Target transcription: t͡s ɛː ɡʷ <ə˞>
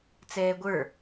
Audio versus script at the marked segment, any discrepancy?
no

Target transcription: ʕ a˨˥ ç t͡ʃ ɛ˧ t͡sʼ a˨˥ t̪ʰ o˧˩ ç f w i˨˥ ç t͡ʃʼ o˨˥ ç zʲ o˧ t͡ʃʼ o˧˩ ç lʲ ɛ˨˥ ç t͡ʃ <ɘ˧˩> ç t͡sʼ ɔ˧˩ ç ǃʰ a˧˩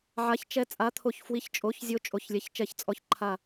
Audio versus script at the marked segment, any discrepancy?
yes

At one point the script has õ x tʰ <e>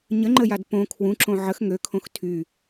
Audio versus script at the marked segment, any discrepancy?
yes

